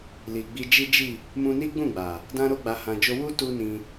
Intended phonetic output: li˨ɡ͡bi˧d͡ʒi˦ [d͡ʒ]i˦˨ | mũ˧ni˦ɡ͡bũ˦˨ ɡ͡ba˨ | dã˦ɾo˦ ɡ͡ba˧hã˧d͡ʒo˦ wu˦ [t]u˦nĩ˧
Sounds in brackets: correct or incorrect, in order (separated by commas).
correct, correct